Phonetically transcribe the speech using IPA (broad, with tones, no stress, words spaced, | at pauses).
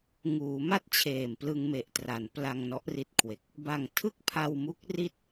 ŋuː˩˦ma˥˩t̚t͡ɕʰeː˨˩m plɯ˧ŋme˨˩ʔtra˩˦n pla˧ŋnɔ˦˥ʔri˦˥t̚kʰwe˨˩k̚ | ba˨˩ŋtʰɯ˥˩k̚pʰa˧wmu˦˥k̚ ri˥˩t̚